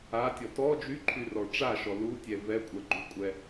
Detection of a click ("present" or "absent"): present